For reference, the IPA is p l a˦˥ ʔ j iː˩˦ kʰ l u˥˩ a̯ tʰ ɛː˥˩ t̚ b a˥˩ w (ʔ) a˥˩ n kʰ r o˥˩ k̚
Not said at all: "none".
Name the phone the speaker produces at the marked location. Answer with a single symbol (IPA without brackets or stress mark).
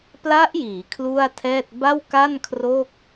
k